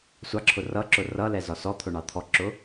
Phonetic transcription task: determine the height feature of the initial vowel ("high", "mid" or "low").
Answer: low